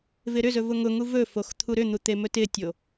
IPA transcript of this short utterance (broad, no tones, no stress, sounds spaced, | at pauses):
v ɪ ɾ ʏ z ɵ v ʊ ŋ ʊ ŋ u v ɵ f o x t̪ʰ u ɾ ʏ n̪ u t̪ e m ɵ t ɪ tʲ o